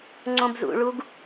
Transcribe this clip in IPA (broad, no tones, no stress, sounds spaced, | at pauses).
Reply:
ŋ͡ǀ õ b z ṵ ɭ u ɡ